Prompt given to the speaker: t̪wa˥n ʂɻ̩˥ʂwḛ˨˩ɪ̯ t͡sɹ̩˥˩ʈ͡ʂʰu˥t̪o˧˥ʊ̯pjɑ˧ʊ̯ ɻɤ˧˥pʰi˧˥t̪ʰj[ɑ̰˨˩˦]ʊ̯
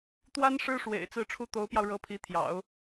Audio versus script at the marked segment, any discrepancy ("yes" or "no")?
no